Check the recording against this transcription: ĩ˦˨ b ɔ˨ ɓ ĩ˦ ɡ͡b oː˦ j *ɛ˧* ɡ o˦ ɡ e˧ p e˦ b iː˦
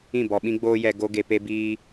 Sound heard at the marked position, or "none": ɛ˧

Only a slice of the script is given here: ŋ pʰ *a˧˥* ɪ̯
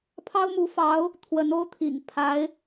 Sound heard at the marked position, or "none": a˧˥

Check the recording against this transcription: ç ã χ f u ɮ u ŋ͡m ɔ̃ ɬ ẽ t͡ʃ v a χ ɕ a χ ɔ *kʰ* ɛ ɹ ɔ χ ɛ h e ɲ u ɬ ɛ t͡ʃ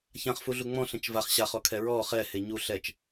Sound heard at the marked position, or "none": kʰ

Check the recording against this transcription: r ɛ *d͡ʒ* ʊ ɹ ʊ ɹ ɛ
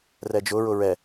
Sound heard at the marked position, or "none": d͡ʒ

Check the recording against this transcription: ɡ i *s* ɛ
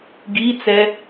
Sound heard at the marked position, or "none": t͡s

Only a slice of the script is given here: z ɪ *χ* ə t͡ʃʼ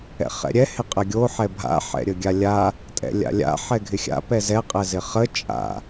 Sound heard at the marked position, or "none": χ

